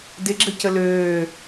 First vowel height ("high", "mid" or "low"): high